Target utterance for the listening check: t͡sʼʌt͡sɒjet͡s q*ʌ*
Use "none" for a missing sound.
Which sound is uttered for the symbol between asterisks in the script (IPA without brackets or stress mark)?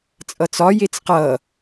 ʌ